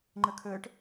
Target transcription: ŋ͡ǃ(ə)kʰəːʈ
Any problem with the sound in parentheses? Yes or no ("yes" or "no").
no